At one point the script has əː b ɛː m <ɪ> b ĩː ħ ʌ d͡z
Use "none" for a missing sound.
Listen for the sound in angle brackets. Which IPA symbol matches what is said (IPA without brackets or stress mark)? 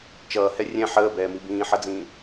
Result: i